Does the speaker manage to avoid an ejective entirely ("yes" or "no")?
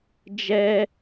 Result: yes